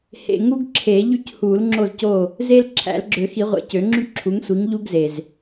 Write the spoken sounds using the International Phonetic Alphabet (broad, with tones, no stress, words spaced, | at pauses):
hḛ˨ ŋu˥ɡǁʰe˨˩˦ ʎy˥˨chu˨˩˦lŋ͡ǁo˥˨zco˥˨ | ze˥l ǁʰæ̰˨˩˦lɡ͡ǁø˨˩˦xi˨˩˦ʁʷḛ˨ cø˨˩˦ŋ͡ǁy˥ǁʰu˨˥ŋsʷi˨˥ŋ ʎu˥ɡze˨z